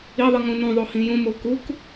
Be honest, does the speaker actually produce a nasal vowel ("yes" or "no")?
yes